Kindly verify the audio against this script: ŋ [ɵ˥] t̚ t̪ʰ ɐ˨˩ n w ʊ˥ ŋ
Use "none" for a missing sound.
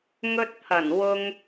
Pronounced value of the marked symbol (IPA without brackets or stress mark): ɵ˥